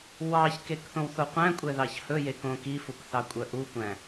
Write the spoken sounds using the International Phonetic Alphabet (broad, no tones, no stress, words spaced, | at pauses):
wɑçkek θõwθoqʷæ̃kʷʼɛ ðɑçhɵje kõkifuk θɑkʷʼœʔukʷæ̃